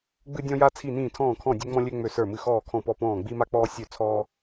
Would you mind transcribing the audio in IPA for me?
ɡ͡b ɨ˧ dʲ ɔ̃˧ j a˧ t͡sʰ i˧˩ n ĩː˧˩ tʰ ɔ̃ː˧˩ kʰ ɔ̃˧˩ dʲ ø˧ ŋ͡m ɔ̃˧ lʲ ø˧ ŋ͡m ø˧˩ s ə˞˧˩ m ɨ˧˩ x ɔː˧˩ kʰ ɔ̃˧˩ p ɔ˧˩ p ɔ̃ː˧˩ ɡ͡b i˧ m a˧ k͡p ɔː˧ sʲ ø˧˩ t͡sʰ ɔː˧

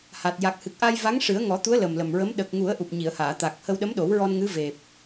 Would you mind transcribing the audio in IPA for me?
h a˨˩ t̚ j a˨˩ k̚ h ɨ˨˩ k̚ ʔ a˧ j v a˧˥ ŋ ʂ ɨ˨˩˦ ə̯ ŋ ɔ˨˩˦ t̪ u˧˥ ə̯ l ə˨˩ m l ə˨˩ m ɹ ə˧˥ m ɗ ə˨˩ k̚ ŋ u˨˩˦ ə̯ ʔ u˨˩ p̚ ɲ i˨˩˨ ə̯ h aː˨˩˨ t̪ a˨˩ k̚ h ə˧ w ɗ ə˧˥ m ɗ o˨˩˦ w ɹ ɔ˧ n ŋ ɨ˧˥ v e˨˩ p̚

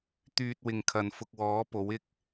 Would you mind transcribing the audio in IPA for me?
t̪ yː˧ t̚ w ɪ˨ ŋ kʰ ɐ˨ n f ʊ˧ k̚ w ɔː˨˥ p o˨˥ w ɪ˥ k̚

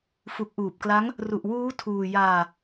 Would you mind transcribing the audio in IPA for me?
f u˨˩ k̚ ʔ uː˨˩ p̚ k l a˦˥ ŋ | r u˨˩ ʔ w uː˦˥ tʰ uː˧ j aː˧

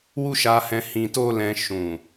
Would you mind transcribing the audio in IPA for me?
w u˦ ʃ a˧ h ɛ̃˧ h ĩ˧ t o˦ l ɛ̃˧ ʃ ũ˨

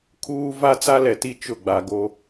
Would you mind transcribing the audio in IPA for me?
kʰ uː˦ v a˦ t͡s a˦ l ɛ˨ t i˦ t͡ʃ ʊ˦˨ ɡ͡b a˨ ɡ o˦

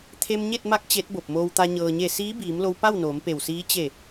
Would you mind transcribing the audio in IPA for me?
t̪ʰ e˧ m ɲ e˥˨ t̚ m a˧˥ k̚ t͡ɕ e˧˥ t̚ b o˧˩ p̚ m oː˧ w t̪ a˧ ɲ ɤː˩ ɲ e˧˩ s iː˧˥ b iː˩˧ m l o˧ w p a˥˨ w n oː˩˧ m p e˧˩ w s iː˧˥ t͡ɕ e˧˩

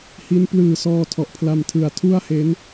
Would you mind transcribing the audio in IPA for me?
h i˦˥ n p l ɯː˨˩ s ɔː˧ tʰ ɔ˨˩ ʔ pʰ l a˧ m tʰ ɯ˨˩ a̯ tʰ u˥˩ a̯ h e˦˥ n

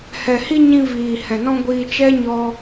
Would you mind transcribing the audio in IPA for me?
h ɛ˨ h i˧ ɲ ĩ˧ v iː˨ h ɛ̃˨ n ɔ̃˧ ɡʷ iː˧ t͡ʃ ɛ˦ ɲ ɔ˧

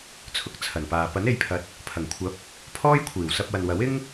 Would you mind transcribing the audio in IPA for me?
t͡sʰ ʊ˨ k̚ t͡sʰ ɐ˨˩ n p aː˨ p ɐ˨˥ n e˨˧ j pʰ ɐ˨˥ t̚ | pʰ ɐ˨˩ ŋ kʷʰ ɐ˨˥ p̚ | pʰ ɔː˥ j kʷʰ iː˨˩ w s ɐ˧ p̚ w ɐ˨ n w ɐ˨˥ w ɪ˥ ŋ

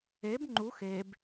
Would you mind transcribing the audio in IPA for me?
e b ŋ͡ǃ u x e b

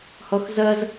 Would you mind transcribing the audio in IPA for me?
h ɔ x z ɐ z

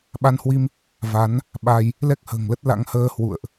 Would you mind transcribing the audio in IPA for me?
ɓ a˧ n h w i˧ m | v a˨˦ n | ɓ a˧ j | l ɛ˦˥ k̚ h ə̤ː˨˩ ŋ l ə˦˥ t̚ l a̰˧˥ ŋ h əː˧ h w ṵ˧˨ ə̯ ʔ

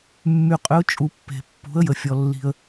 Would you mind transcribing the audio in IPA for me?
mː y˩ qʼ ʏ˩˥ ʊ̯ t͡ʃʼ u˩ pː e̤˩ pː ṳ˩˥ ə̯ j ə˩ fʲ ɔ˩ lː i̤˩ ə̯

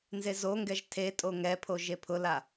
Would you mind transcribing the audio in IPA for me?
n z e z o ŋ ɡ ɛ ʒ tʰ e tʼ o ŋ ɛ pʰ o ʒ e pʰ ʊ l a

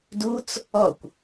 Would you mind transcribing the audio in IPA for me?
d u t͡s | ɔ kʷ

